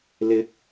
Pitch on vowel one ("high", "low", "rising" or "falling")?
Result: rising